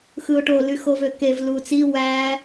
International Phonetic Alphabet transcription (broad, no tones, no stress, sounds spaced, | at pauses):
x ɯ ʊ̯ ʈ o l y x o v ø k e v l u t͡s i w æ